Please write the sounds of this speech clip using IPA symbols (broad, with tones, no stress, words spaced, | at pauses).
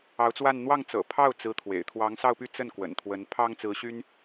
ɑ˧˥ʊ̯t͡swa˥˧n n̪wɑ˥˩ŋt͡sɤ̰˨˩ pʰɑ˥˩ʊ̯t͡sɹ̩˧˥ t̪ʰwḛ˨˩ɪ̯ t̪ʰwɑ˧˥ŋsɑ˥˧ʊ̯py˥˧ t͡sə˥˩n kwə̰˨˩nt̪ʰwə˧˥n pʰɑ˥ŋt͡sɹ̩˧˥ɕy˥n